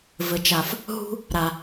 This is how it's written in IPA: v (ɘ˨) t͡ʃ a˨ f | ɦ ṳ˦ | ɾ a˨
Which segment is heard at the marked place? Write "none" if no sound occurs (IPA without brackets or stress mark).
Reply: ɘ˨